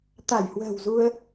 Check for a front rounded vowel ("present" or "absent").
absent